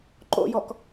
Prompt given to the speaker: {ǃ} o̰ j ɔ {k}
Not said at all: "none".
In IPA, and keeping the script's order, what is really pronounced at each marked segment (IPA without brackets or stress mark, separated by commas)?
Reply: ǃ, k